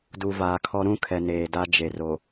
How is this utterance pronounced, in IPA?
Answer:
d u˨ v aː˨ kʰ ɔ˦ ɾ ũ˦ kʰ ɛ˨ n eː˨ d a˦ d͡ʒ e˨ r o˨

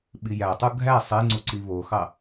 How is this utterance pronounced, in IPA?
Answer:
ɓ i j æ tˤ u ɡʱ æ sˤ e ŋ͡ǀ u ǀ i β o x ɑ

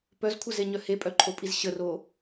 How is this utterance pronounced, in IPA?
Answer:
p œ z kʷʰ ə z e ɲ œ h e pʼ œ ǃʰ o pʼ i z ɕ ə r o

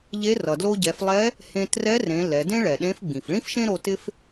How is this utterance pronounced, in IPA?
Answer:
ʎ e˧˥ r ʌ˩ d l o˧ ɟ ɛ˩˧ f lˠ ɛ˧˥ | h ẽ˧ t r ɛ˧˥ r ẽ˩˧ l ɛ˩˧ d ẽ˥ ɭ ɛ˩ ɗ ẽ˧˥ f ɡ͡b ĩ˩ f ɭ ĩ˥ f ʃ ẽ˥ ɾ o˧ t ɪ˥ f

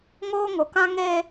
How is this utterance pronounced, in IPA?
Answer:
ŋ oː˦ ŋ ʊ˨˦ k ã˦ ŋ eː˦

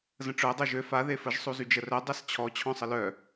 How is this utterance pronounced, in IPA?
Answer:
z ə̃ ʈ͡ʂ œ dˤ o ʒ ø f a ð e f ə ʒ sˤ u z y d͡ʒ ə r œ dˤ ɛ s t͡ɕʰ ɔ t͡ɕʰ ɔ̃ sˤ ə l œ

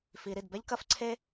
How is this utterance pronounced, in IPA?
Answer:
f i˨˩˦ ɾ i˩ d b ɛ˥ ʎ k ɐ˥ f ǀʰ e˥

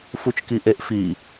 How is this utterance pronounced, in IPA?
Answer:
f u t͡ʃ k i ʔ e ʔ f i

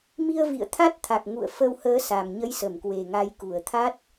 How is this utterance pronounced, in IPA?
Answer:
m i˧ ə̯ v ḭ˧˨ ə̯ t̪ʰ a˦˥ t̚ t̪ʰ a˨˩ k̚ ŋ ṵ˧˨ ə̯ f ə˧ w h əː˨˦ s a˨˩ m ɲ ə˨˦ j s ə˧˩ m k w e˨˩ ŋ a˨˦ j k u˧˩ ə̯ t̪ʰ a˦˥ t̚

